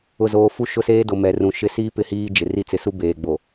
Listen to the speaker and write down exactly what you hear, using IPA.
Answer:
ʊ˨ z oː˨ f u˦ ʃ ʊ˦ s eː˦ d o˨ m ɛ˨ r ũ˨ ʃ ɪ˨˦ s iː˦ p ɪ˦ h iː˦ d͡ʒ ɪ˨ r i˦ t͡s ɪ˨˦ s u˦ b eː˨ ɡ͡b o˨

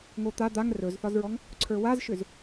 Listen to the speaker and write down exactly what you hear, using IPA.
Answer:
ŋ o t̪ a d̪ a ŋ r ɵ z θ ɒ z ɹ ɔ ŋ | ǀʰ ə˞ w a z ʃ ʏ z

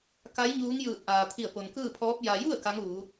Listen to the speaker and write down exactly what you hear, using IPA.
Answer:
k a˧˥ j ɲ uː˧˥ ŋ j ɯː˧˩ t̚ ʔ aː˩ t̪ʰ i˧˩ ə̯ p o˩ n k ɯː˥˨ pʰ ɔː˧˥ p̚ j a˧ j u˥˨ ə̯ k a˧˥ ŋ ʋ uː˩˧

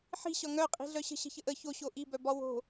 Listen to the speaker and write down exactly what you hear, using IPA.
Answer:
ħ i̤ ɕ ɒ ŋ œ qʼ i̤ ɮ œ ɕ ə̤ ɕ ə̤ ç ə ʔ ə ç o ɕ o ʔ i b œ b ɒ w o̤

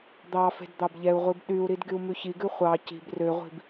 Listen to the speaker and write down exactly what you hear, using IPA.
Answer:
d̪ ɑ f e̤ d d̪ ɑ b ʎ ɛ u̯ ʁʷ i b ɗ y u̯ ɾ i d ɡ y u̯ m ʉ ç i ɡ ʉ χʷ ɑ c i̤ b r ø ʁʷ i̤ b

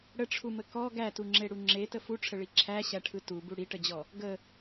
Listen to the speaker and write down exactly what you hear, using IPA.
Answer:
ɽ ə ʈ͡ʂʰ u m ə k ɔ ɡ æ t u ŋ͡ǁ e ɽ u ŋ͡ǁ e t ə f u ʈ͡ʂʰ ə ɭ i ǁʰ æ ɕ æ ʈʰ ɯ t u b u ɽ i ʈ ə d͡ʑ ɔ | ɡ ə

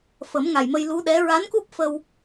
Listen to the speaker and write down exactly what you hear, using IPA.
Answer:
f ə˨˩˦ m ŋ a˨˩ j m ə˧ j l u˧˥ ɗ ɛ˧˥ ɹ a˧˥ n k u˦˥ p̚ f ə˧ w

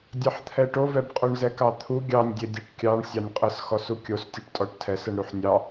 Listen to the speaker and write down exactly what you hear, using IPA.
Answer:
dʲ ɑ ħ t̪ʰ ɛ ʈ o v ɛ b qʼ o ɳ z ɛ k ɑ t̪ʰ u ɡʲ ɑ nʲ dʲ e dʲ e ʈ kʲ ɑ ɳ sʲ ɑ nʲ qʼ ə s x ɔ s u kʲ o s tʲ u ʈ tʼ ɔ ʈ tʰ ɛ s ə ɳ ɾ u ħ nʲ ɑ

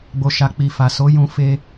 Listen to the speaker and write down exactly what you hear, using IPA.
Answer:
ɡ͡b o˨ ʃ a˨ k͡p i˨ f a˨ s o˨˦ j ũ˧ f e˧

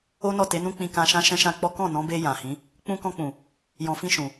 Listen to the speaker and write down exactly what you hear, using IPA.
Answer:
o˦ n ɔ˦˨ t e˨˦ n ũ˦ k͡p ĩ˧ k ã˧ ʃ ã˦ ʃ ɛ̃˦ ʃ ã˦ k͡p ɔ˦ k ɔ̃˦˨ n ɔ̃˨˦ b e˧ j ã˨ h ĩ˨˦ | k͡p ũ˧ k ɔ̃˧ k͡p ũ˨ | j ɔ̃˨ f ĩ˧ ʃ ũ˨

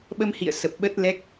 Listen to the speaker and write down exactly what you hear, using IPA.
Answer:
ɓ ə˧ m h ḭ˧˨ ə̯ s ə˨˩ p̚ ɓ ə˦˥ t̚ l ɛ˦˥ k̚

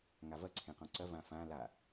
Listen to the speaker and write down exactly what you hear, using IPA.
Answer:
ŋ a v ɐ ǀʰ ẽ q ɔ̃ ǀ ɐ v ã f ã l a

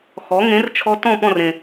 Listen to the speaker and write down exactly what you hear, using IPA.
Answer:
x ɔ˩˥ ŋ ẽ˩˥ r t͡ʃʰ ɔ˧ t ɔ̃˥˩ p ɔ̃˥˩ r ẽ˩

